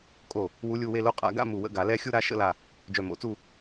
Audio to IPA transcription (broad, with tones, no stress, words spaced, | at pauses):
kʼo˥˩ | wu˧˥lʲu˧˥˧we˥˧lo˥˧ qʼa̰˨˩˦ɡa̰˥˧ mu˧˩wə̰˧˥˧ ɡa˨˩˦lɛ˥˧ xʲu˥˧ɾa˥˧ ʃə̰˧˥˧la˧˩ | d͡ʒœ˧˩mo̰˨˩˦t͡su˥˧